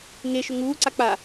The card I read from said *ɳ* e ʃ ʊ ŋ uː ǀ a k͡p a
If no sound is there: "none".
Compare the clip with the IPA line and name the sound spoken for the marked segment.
ŋ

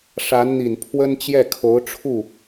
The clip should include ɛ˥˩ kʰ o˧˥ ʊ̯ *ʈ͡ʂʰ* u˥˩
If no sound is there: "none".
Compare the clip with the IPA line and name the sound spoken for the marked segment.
ʈ͡ʂʰ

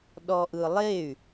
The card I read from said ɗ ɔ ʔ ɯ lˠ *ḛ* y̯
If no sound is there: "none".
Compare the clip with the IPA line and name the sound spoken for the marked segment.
e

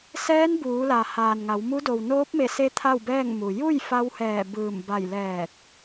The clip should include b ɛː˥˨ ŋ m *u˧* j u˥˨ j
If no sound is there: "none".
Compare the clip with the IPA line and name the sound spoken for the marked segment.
u˩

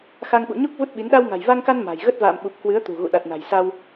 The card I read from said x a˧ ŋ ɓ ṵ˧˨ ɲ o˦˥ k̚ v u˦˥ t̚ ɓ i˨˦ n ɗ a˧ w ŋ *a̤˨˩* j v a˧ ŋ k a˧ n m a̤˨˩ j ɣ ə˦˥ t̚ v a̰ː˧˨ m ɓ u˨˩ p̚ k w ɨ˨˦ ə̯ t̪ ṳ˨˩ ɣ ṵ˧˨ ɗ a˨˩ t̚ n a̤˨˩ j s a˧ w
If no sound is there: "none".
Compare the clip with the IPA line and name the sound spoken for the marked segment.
a̤˨˩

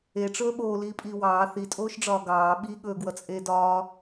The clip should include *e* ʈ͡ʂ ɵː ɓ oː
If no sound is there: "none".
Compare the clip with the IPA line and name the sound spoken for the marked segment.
e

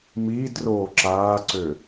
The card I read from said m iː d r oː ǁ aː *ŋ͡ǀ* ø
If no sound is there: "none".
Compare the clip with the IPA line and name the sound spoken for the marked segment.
ǀ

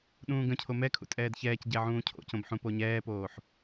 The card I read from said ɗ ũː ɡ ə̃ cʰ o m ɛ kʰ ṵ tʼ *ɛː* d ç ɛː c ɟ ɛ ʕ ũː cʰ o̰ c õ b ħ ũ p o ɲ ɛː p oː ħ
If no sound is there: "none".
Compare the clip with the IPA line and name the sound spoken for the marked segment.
ɛː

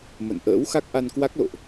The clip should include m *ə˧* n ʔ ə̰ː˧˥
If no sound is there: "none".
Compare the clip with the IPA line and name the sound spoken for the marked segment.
ə̰˧˨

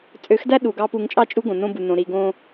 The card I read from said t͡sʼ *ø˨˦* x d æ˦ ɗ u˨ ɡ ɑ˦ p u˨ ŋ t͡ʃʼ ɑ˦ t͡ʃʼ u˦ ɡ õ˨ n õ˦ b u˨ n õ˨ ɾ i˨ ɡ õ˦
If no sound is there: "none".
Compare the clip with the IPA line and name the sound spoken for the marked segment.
ø˨˦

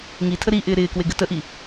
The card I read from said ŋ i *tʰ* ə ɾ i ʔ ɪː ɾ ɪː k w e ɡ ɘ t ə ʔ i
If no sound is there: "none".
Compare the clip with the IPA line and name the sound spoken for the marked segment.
tʰ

